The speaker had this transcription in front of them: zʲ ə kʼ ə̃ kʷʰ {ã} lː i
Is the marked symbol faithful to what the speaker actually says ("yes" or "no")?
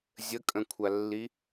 no